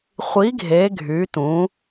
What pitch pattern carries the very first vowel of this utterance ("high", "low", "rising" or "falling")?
rising